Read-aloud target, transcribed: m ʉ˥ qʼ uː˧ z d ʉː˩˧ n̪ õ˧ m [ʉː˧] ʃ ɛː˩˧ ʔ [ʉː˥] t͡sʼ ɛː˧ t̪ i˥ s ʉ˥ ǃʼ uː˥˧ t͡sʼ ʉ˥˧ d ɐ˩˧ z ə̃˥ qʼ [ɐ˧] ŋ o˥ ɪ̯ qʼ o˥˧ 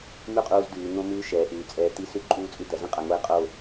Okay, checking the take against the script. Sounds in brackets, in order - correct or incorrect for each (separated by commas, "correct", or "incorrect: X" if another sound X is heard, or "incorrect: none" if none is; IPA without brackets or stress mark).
correct, incorrect: ʉː˩˧, correct